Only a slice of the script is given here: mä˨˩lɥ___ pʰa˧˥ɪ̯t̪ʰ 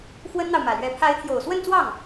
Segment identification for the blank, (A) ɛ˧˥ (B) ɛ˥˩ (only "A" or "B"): A